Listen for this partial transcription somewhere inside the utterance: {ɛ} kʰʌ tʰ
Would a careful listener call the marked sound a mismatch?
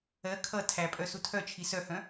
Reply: yes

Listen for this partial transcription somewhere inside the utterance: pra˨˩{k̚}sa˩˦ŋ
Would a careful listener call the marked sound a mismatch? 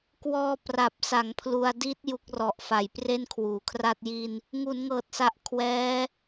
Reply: yes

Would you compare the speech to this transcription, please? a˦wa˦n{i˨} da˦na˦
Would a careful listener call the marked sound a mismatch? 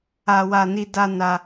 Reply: yes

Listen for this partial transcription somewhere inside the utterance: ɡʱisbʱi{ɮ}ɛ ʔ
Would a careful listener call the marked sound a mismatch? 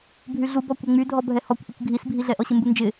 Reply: no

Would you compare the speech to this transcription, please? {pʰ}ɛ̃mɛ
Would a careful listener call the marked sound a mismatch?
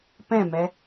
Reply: yes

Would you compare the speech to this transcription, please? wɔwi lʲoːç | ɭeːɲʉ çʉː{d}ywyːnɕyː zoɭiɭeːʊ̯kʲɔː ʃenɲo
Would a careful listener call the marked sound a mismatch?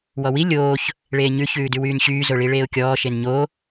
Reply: no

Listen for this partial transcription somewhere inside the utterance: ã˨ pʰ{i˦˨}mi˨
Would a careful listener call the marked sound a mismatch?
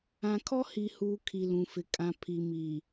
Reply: yes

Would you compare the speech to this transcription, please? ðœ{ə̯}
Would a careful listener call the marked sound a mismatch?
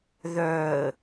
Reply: no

